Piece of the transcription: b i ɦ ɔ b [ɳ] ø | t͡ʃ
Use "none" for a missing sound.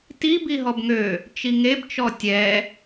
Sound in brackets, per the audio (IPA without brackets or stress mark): ŋ